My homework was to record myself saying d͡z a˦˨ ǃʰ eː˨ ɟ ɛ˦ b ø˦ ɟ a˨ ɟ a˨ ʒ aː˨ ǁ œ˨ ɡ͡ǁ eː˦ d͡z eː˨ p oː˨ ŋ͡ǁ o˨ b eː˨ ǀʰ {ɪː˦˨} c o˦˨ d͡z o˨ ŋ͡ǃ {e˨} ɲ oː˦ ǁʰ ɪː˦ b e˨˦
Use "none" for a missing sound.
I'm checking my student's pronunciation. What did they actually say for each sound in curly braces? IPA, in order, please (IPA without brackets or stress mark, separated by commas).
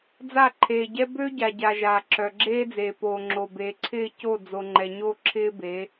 ɪː˦˨, ɛ˨